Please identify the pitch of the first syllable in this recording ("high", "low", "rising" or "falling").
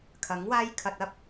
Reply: rising